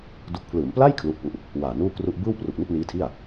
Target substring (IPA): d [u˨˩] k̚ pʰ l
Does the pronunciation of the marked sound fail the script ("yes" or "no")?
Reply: no